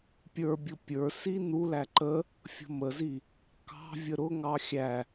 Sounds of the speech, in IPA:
pʲ ə˞ bʲ ʊ pʲ ə˞ s i n u l æ ǃ ə | fʲ ə̤ m ə z i | k ɑ̤ vʲ ə ɾ ʊ ŋ ɑ xʲ æ

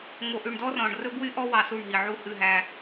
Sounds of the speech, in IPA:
ŋ o˨ ʔ ʉ˨ ɳ d ɔ˦ r ɔ̃˨ ɳ r ɵ˦ b w y˦ ʔ ɔ˦ w ɑ˨ s u˦˨ ɳ ɦ i˨ ʕ u˦ h ʉ˦˨ ɦ æ˦

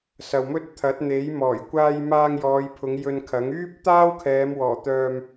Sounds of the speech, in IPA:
s ɐ˨ w m ɵ˥ t̚ t̪ʰ ɐ˨˥ t̚ n̪ e˨˥ j m ɔː˨˩ j kʷ aː˧ j m aː˧ ŋ j ɔː˨˧ j pʰ ʊ˨˧ ŋ j ɵ˧ n kʰ ɐ˨˥ ŋ yː˥ p̚ t̪ aː˥ w kʰ ɛː˨˧ m w ɔː˨˩ t̪ œː˧ m

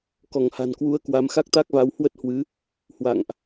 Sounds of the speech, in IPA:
k ɔ˧˩ ŋ h a̤˨˩ n k w u˨˦ ə̯ k w a˨˦ m x a˦˥ k̚ t̪ a˦˥ k̚ v a˨˦ w h w ə˦˥ t̚ h w ɨ˨˦ | h w a̰˧˨ ŋ ʔ

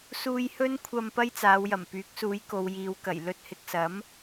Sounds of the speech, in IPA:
s uː˧ j h ɵ˥ n kʷʰ ɐ˧ m p ɐ˥ j t͡s aː˨˧ w j ɐ˨˩ m p yː˨˥ k̚ s uː˨˥ j k o˨˧ w j iː˨˧ w k ɐ˨˩ j l ɵ˧ t̚ h ɪ˨ k̚ s ɐ˨˥ m

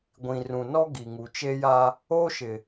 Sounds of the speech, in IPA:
ɡʷ ĩ˨ r ũ˨ n ɔ˦ ɡ i˨ ŋ u˨ t͡ʃ e˦ j a˦ | oː˦ ʃ ɪ˨

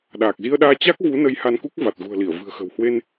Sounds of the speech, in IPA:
ɗ aː˨˩ k̚ z i˧ ə̯ ɗ aː˧ t͡ɕ a˦˥ k̚ v u˨˦ n ə˨˦ j h a˧ n k u˦˥ k̚ v a˨˩ t̚ ɣ ṳ˨˩ ə̯ l i˧˩ ə̯ v ɨ̤˨˩ ə̯ x ə̤˨˩ w h w e˧ n

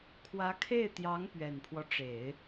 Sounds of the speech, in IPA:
kʰ w ä˧˥ kʰ e˥˩ ɪ̯ t̪ j ɑ˧˥ ŋ p ɥ ɛ˨˩ n pʰ w ɔ˦ ʈ͡ʂ e˨˩˦ ɪ̯

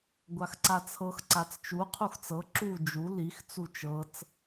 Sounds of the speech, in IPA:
ɡʷ a x ǀ a t͡sʰ ɤ x ǀ a t͡s t͡ʃ u qʰ u x t͡s ɤ ǁ u d͡ʒ u l i x t͡s u t͡ʃ ɤ t͡s

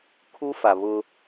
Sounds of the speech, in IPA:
kʰ u˦ f a˨ β ʊ˦

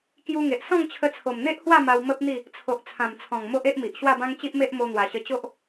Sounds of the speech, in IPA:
k j u˧ ŋ e˨ ʔ s ɔ̃˥˧ ŋ t͡ɕʰ ə˧ t͡sʰ o˨˩ m n̪ e˦ ʔ h w a˥˧ m a˧ w m ə˦ p̚ n̪ i˥˧ | t͡sʰ o˨ ʔ t͡sʰ ã˨˩ m t͡sʰ ɔ̃˨˩ ŋ m o˦ ʔ e˦ ʔ m i˨ ʔ ɕ w a˥˧ b ã˦ ŋ t͡ɕ i˦ ʔ m e˦ ʔ m o˧ n̪ w a˨˩ ɕ ə˧ t͡ɕ o˦ ʔ

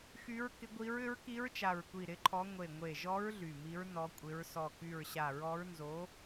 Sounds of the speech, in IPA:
x y˧˥ ɹ k ɪ˧˥ ɡʷ i˧˥ ɹ ʏ˧˥ ɹ k i˧˥ ɹ t͡ʃ a˧˩ ɹ kʷ i˧˩ ɾ ɪ˧˥ ǃʰ ɔ˧˥ ŋʷ e˧˩ ŋʷ e˧˩ ʒ ɔ˧˥ ɹ ɮ y˧˩ m i˧˥ ɹ n ɔ˧˥ kʷʼ ɪ˧˥ ɹ s ɔ˧˩ k y˧˩ ɹ ɕ a˧˩ ɹ ɔ˧˥ ɹ n z o˧˥

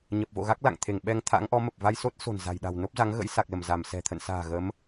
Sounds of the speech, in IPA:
ɲ ə˨˩ p̚ v o̰˧˨ ɣ a˦˥ k̚ l a̰˧˨ ŋ t̪ʰ e˧˩ ŋ ɓ ɛ˧ ŋ t̪ʰ a̰˧˥ ŋ ʔ ɔ˨˦ m ə˨˩ p̚ v a˧ j s o˦˥ t̚ s o̤˨˩ n z a̤˨˩ j ɗ a̤˨˩ w n o˦˥ p̚ z a˨˦ ŋ ɣ ə̰˧˥ j s a˨˩ k̚ l ə˧˩ m z a˧˩ m s ɛ̤˨˩ t̪ʰ ə̰˧˨ n s a̤ː˨˩ ɣ ə˨˦ m

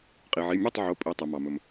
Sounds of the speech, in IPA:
qʼ i˩ ʕ i˩˧˩ mʲ ɑ˥˩ tˤ ʕ o˩˧˩ pʼ i˩˧˩ tˤ e˩ m ɑ˩ m ɵ˩ m

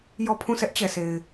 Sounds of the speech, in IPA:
j ɔ˦˨ pʰ ũ˦˨ s ɛ˦ ʔ t͡ɕ ɛ˨ sʰ e˨ ɪ̯

